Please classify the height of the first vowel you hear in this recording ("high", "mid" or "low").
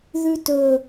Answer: high